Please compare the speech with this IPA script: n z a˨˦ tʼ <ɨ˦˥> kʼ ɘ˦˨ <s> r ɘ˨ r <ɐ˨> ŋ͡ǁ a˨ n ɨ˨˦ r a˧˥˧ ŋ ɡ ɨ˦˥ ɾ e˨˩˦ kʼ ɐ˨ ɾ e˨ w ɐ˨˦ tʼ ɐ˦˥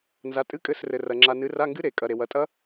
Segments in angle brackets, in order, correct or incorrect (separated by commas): incorrect, correct, correct